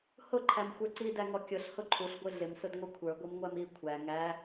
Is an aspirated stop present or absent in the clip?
present